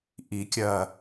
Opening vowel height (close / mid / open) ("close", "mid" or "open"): close